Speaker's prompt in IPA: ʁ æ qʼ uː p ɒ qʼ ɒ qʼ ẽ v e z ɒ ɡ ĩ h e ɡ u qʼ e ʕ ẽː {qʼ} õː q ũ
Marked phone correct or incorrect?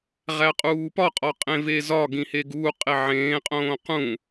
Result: correct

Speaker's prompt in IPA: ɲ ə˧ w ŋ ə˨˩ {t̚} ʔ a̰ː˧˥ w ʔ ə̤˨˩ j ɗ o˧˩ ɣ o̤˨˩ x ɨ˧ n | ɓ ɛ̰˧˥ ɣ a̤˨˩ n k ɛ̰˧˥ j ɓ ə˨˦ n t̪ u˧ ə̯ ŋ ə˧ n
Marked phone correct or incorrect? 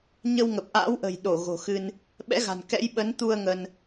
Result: incorrect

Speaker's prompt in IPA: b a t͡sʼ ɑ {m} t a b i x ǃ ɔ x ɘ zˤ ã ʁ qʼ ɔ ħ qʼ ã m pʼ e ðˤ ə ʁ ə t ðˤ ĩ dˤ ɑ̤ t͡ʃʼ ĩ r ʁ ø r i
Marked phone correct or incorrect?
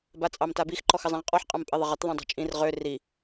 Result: correct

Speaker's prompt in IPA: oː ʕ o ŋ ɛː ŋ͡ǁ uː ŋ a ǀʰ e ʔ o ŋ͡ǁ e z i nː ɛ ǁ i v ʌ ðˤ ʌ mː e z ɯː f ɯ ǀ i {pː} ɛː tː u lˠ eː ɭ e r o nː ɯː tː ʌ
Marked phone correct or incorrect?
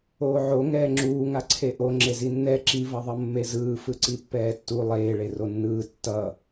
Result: correct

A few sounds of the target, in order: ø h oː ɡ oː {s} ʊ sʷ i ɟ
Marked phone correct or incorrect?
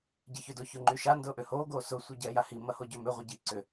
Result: correct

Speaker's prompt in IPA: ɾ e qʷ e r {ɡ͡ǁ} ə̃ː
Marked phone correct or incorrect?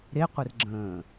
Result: correct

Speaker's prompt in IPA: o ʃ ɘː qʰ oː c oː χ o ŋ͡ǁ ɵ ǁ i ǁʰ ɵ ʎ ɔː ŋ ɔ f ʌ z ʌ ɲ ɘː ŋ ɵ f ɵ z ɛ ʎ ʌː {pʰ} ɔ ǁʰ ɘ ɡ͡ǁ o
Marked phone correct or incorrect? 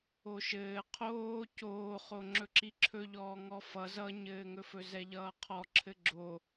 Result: incorrect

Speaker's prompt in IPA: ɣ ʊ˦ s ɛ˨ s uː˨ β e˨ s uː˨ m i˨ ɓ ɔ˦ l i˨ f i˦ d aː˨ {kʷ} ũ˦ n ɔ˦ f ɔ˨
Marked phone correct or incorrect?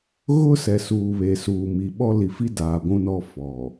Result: incorrect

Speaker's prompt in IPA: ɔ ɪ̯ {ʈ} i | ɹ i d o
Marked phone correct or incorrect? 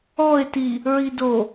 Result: incorrect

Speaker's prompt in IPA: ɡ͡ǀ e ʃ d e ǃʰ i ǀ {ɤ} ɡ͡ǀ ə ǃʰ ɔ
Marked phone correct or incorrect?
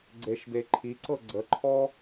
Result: correct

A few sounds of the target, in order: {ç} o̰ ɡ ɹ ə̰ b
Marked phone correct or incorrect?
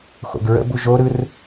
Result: incorrect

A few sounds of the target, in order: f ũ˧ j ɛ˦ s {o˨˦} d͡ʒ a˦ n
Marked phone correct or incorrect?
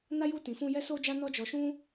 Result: incorrect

